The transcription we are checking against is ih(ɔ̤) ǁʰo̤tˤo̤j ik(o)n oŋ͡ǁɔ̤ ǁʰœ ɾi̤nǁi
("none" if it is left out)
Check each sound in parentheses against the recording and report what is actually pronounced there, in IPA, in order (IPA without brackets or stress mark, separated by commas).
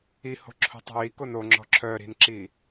o̤, o